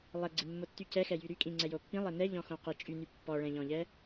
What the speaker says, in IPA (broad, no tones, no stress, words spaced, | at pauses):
lˠɛɡ͡ǀimːotːy cɛxɛjy ɾykʼĩ ŋ͡ǀɛjopːĩ lˠɛnɛ ʎɔ̃xõqi t͡ʃʼyny pːɔɭɛ̃ʎɔ̃ʎɛ